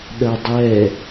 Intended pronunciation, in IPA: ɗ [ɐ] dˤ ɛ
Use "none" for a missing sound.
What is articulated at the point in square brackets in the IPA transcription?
ɐ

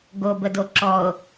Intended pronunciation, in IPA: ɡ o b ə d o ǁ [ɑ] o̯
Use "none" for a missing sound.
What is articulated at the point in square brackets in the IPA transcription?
ɔ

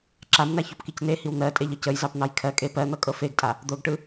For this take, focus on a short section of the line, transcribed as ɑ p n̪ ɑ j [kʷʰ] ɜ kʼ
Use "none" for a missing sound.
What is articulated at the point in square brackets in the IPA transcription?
kʰ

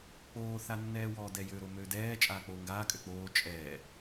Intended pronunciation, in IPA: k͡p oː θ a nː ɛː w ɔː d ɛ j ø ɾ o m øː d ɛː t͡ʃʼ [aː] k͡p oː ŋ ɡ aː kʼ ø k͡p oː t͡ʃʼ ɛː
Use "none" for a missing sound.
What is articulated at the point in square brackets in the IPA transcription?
aː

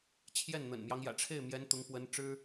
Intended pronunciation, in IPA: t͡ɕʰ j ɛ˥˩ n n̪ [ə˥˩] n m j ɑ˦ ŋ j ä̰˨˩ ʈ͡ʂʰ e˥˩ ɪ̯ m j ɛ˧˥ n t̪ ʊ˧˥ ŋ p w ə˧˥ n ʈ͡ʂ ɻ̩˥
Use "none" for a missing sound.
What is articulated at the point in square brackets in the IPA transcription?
ə̰˨˩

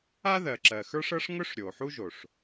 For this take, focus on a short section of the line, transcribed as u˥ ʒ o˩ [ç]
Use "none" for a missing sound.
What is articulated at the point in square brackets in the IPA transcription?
ʂ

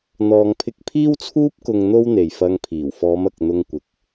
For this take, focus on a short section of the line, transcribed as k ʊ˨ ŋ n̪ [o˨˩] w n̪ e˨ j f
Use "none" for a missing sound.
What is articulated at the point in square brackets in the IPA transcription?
o˧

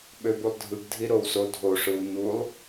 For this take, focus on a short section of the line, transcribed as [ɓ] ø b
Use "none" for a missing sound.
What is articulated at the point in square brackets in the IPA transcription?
ɓ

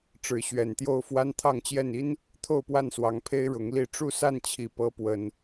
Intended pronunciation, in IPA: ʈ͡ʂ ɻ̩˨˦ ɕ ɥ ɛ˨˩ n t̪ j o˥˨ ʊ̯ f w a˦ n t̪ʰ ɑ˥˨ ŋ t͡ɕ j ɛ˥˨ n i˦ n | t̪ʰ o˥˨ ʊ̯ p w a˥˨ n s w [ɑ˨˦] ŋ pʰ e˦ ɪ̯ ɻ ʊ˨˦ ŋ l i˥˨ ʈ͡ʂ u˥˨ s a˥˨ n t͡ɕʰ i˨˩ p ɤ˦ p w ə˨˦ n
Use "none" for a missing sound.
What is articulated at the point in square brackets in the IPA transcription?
ɑ˨˦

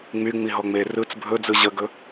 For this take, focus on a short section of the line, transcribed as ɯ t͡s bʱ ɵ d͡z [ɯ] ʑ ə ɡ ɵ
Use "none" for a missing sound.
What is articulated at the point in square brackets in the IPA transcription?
ɯ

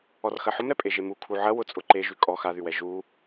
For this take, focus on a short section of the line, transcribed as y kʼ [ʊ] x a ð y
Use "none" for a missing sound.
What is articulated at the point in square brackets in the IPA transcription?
ɔ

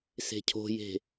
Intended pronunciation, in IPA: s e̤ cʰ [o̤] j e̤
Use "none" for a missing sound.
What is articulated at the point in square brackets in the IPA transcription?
o̤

